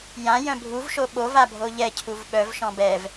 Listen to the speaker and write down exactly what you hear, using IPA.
j ã j œ̃ bʱ u v ʃ o ɓ o v a bʱ o ʎ ɛ cʰ u v ɓ œ v ʃ ɔ̃ b ɛ v

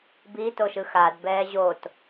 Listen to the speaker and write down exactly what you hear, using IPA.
b i t o ʃ ɯ x a d b ɛː ʑ o t

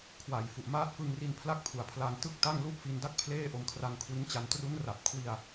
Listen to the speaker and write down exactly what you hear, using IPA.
kʰ w a˨˩ j f u˨˩ ʔ m aː˦˥ t̚ f ɯ˧ ŋ r i˧ n pʰ l a˥˩ k̚ pʰ u˨˩ a̯ pʰ l a˧ ŋ t ɯ˥˩ k̚ t a˥˩ ŋ l u˥˩ ʔ f i˧ n d a˥˩ k̚ pʰ l eː˥˩ ʔ o˧ m kʰ r a˧ ŋ kʰ w i˦˥ n t͡ɕ a˧ n t r u˦˥ n r a˨˩ p̚ kʰ w i˧ a̯

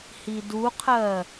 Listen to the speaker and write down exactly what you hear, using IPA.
h i d u qʰ ɜ

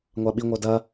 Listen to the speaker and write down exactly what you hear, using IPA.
ŋʷ a ɓ i ŋʷ œ d ɐ

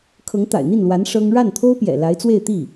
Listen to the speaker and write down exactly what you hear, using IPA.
kʰ ɤ˧˥ ŋ t̪ a̰˨˩ ɪ̯ n̪ i˥˩ n l w a˧˥ n ʂ ɤ˥ ŋ ɻ a˥˩ n t̪ʰ o˥ ʊ̯ p j ɛ̰˨˩ l a˧˥ ɪ̯ t͡s w e˥˧ ɪ̯ t̪ i˥˩

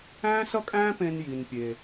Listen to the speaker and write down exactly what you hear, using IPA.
æ̃ː˦ s ʌ˦ kʼ æ̃ː˦ p ẽ˧ n j i˧ n pʲ eː˧

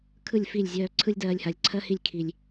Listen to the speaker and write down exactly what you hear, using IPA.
kʰ ɯ˦˨ lʲ f i˦˨ lʲ zʲ œː˧ ǀʰ ɯ˧ lʲ d ɜː˨ lʲ h a˨ lʲ ǀʰ ɜ˦ h i˦˨ lʲ kʰ i˨ lʲ

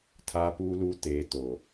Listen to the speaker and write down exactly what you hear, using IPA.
tʰ a˨ p uː˨ l u˨ t eː˨ t o˨

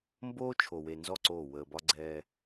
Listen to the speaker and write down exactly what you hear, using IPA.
m b oː˦ t͡ʃʰ o˨ w e˨ n z ɔ˦˨ ǀ oː˦˨ w əː˨ b ɒ˦ ɡ͡ǀ ɛː˦

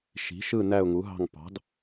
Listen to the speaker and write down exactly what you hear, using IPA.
ʃ i̤˨˥ ʃ ɯ˥˧ n æ˥˧ ʊ̯ ŋ u˨˥ ɦ ɑ̤˥˧ ŋ p ɑ̤˨˥ d

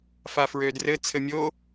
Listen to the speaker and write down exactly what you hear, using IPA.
f a f ɹ ø d r ɘ t͡sʰ ɘ mʲ o

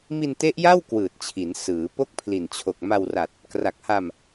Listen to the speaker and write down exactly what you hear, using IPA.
m i˧ n t e˦˥ ʔ j a˥˩ w k w ɯː˨˩ t̚ t͡ɕʰ i˩˦ n s ɯː˩˦ p o˥˩ k̚ pʰ l i˨˩ n t͡ɕʰ o˨˩ k̚ m a˧ w r a˨˩ t̚ | k r a˨˩ k̚ h a˧ m

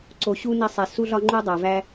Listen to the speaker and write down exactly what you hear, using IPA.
ǀ o˨ ɕ u˦ n i˧ sˤ e˨ s u˦ ɮ ɒ˦ ŋ͡ǃ u˦ dˤ æ˨ v æ˦

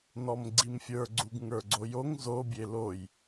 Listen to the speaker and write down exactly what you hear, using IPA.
n ɔ m ɡ͡ǀ i m fʲ ə˞ ɡ͡ǀ u ɡ ŋ ə˞ ɡ͡ǀ o j o ŋ z o bʲ e l o j

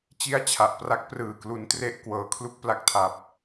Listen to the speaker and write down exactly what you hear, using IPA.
t͡ɕ i˦˥ a̯ t͡ɕʰ a˨˩ ʔ p r a˦˥ k̚ p r ɯː˨˩ k l u˦˥ n t r e˥˩ ʔ k w ɤː˩˦ kʰ l u˥˩ k̚ p l a˦˥ k̚ tʰ a˦˥ p̚

